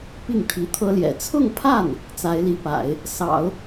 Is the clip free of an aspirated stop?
no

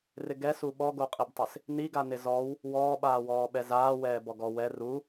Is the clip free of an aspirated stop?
yes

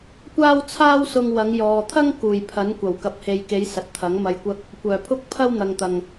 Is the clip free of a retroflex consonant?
yes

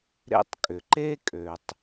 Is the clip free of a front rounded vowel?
no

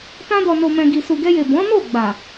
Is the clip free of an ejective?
yes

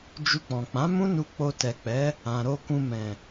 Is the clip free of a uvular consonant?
yes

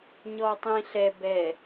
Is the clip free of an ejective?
yes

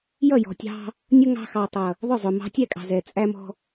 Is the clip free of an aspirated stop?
yes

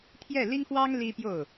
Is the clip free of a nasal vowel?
yes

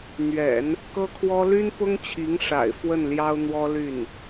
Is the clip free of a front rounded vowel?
no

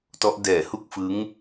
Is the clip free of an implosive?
yes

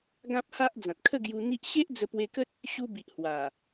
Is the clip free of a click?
yes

